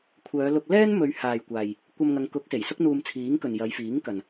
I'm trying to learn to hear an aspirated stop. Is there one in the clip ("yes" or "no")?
yes